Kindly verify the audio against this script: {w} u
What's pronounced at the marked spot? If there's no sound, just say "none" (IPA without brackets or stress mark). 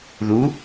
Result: ð